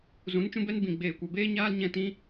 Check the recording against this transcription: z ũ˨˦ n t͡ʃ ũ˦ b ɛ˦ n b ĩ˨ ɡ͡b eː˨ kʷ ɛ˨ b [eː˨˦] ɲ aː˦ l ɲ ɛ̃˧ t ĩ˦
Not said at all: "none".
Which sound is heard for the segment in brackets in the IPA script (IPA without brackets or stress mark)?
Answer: eː˦